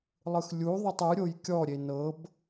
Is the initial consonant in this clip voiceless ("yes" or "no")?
no